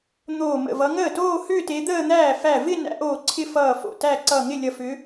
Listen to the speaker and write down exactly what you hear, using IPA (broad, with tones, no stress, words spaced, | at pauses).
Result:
n̪oː˧˩mə̰˧˩ vʌ˨˦ ŋəː˥˩toː˥˧ hʏː˥˧te˨˦d̪əː˥˧n̪æː˥˩ fæ˧˩vɪ˥˧ næ̰˨˦ʔoː˧˩ ǀʰɪ˥˧ fʌː˧˩ fo̰˧˩tæ˥˧ ǀʌː˧˩ŋɪ˥˩lʲʌ˧˩ fʏ˨˦